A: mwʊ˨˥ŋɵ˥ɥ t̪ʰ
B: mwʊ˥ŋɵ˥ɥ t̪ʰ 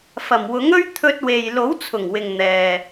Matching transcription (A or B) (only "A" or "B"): A